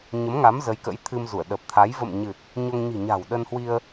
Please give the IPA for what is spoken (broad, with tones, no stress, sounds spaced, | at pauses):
ɲ ə˨˦ m ŋ a˨˦ m z ə˨˦ j k ə̰˧˥ j t̪ʰ ɨ˧ m z u˧˩ ə̯ ɗ ə˨˩ p̚ t̪ʰ a˨˦ j v ə̰˧˨ m ɲ ɨ˨˩ t̚ | ɲ o˧ ŋ ɲ i̤˨˩ ɲ a̤˨˩ w ɗ ə˧ n h w i˧ ə̯